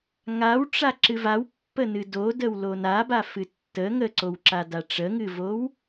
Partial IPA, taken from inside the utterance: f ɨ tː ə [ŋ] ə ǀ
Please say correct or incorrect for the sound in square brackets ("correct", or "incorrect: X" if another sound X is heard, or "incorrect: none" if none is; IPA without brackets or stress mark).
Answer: correct